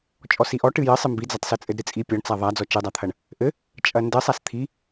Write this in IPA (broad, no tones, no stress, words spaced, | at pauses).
t͡ʃʼɔsiʔɔ ʈɨjɘ sˤɨmbid͡zɐtˤsɘ t͡sʼɘdɾɨt͡sʼi pʲɔɳt͡sa ðˤad͡zɔ t͡ʃɨdˤat̪ʰɐɳ | ʔɘ | t͡ʃʼɐndɘ sˤast̪ʰi